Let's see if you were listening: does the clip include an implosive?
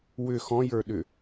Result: yes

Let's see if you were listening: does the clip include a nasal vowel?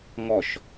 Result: no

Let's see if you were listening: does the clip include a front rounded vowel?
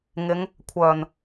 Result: yes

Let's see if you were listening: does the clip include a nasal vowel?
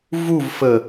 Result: no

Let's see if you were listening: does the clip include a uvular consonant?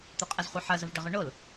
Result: yes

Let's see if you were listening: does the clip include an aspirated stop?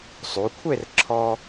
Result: yes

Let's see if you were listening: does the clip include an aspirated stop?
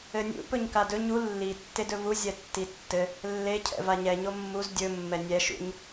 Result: yes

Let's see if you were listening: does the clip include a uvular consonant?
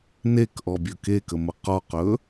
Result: yes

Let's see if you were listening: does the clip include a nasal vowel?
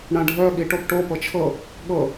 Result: yes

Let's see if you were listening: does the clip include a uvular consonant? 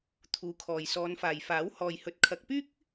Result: no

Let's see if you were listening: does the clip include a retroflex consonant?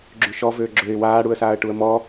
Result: yes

